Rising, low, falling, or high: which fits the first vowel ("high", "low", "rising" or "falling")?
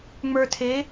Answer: low